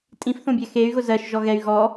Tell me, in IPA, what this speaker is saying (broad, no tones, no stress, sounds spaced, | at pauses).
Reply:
tʼ ĩ f θ õ bʲ ɛ x e y̯ ɣ ʊ z ɜ ʃ ʒ ɔ ɣ ɛ y̯ ɣ ɔ